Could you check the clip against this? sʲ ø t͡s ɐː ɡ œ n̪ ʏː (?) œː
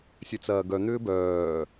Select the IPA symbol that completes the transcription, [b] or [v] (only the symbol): b